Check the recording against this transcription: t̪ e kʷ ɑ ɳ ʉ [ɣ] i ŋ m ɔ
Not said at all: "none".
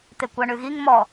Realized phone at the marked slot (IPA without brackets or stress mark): ɣ